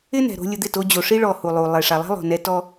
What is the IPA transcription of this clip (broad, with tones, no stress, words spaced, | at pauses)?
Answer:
ɪ˦nɛ̤˨ ɾo̤˧ lʲʊ˧d̪ɪ˦˨to˧d͡ʑo˨ ʂi˦ɭɔ˨ hu˨lˠu˨ lˠe˨ʂa˨lˠɛ̤˦ lˠo̤˨nɛ˧tɔ˦